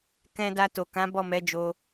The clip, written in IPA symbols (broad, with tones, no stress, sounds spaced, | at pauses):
k ɛ̃˧ d a˧ t o˨ k ã˨˦ b ɔ˦˨ m ɛ˨˦ d͡ʒ o˧